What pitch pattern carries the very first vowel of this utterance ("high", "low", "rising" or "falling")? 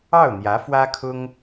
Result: falling